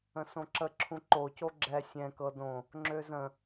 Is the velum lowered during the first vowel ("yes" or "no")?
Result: yes